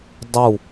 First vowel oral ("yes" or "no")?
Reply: yes